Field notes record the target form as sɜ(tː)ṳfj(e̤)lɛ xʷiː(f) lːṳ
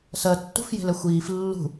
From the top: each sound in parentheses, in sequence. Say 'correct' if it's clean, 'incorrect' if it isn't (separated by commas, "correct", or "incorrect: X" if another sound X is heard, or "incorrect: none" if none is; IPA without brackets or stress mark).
correct, correct, correct